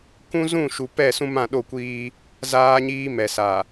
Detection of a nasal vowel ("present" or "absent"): present